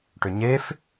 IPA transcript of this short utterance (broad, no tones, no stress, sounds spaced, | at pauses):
ʈ ʏ ɲ e f